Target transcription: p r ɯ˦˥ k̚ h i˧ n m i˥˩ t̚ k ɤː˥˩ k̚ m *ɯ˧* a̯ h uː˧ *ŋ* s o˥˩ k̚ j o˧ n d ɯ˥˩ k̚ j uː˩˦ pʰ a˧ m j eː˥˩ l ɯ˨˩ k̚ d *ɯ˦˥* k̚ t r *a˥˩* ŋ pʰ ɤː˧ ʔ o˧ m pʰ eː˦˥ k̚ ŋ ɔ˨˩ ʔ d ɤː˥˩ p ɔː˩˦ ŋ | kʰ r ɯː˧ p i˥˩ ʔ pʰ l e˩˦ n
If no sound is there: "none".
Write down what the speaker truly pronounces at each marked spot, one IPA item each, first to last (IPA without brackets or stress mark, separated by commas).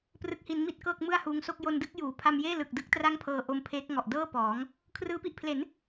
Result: ɯ˥˩, ŋ, ɯ˦˥, a˥˩